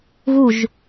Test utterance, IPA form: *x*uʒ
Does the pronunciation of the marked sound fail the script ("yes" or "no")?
yes